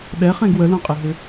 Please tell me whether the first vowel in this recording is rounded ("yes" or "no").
no